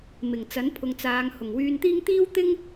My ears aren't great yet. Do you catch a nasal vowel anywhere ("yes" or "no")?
no